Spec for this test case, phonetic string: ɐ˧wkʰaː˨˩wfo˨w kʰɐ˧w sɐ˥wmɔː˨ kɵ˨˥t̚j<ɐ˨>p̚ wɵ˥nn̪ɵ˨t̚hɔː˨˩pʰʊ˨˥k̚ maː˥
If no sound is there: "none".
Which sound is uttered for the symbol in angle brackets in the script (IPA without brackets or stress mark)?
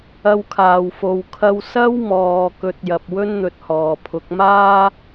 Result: ɐ˨